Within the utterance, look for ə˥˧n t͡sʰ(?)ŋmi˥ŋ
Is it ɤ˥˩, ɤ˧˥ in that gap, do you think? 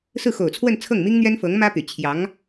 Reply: ɤ˥˩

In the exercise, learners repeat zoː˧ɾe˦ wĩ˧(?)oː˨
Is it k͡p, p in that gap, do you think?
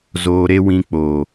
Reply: k͡p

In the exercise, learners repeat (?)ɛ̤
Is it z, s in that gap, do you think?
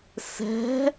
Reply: s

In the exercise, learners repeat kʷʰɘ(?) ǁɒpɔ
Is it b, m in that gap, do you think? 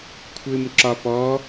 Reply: m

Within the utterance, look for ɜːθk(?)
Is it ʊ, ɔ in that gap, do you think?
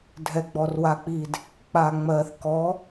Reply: ɔ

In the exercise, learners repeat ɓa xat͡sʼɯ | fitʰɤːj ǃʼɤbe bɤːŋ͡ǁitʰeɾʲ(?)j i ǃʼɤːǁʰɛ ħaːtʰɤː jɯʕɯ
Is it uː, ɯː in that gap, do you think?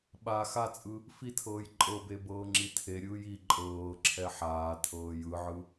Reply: ɯː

